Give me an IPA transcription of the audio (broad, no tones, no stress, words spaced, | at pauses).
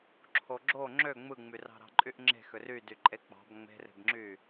ǁʰoɡ͡ǁo ŋ͡ǁø ŋ͡mɯŋ͡myrɑ̤ ɾɑ̤ǃʼyʔŋ͡ǁe̤ xøry dyǃʼek͡pɑ̤b ŋ͡me̤re̤bŋ͡ǁy